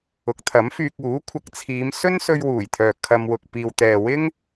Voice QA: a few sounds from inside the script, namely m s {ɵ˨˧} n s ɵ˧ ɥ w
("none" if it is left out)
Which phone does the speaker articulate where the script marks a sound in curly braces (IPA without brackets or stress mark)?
ɵ˥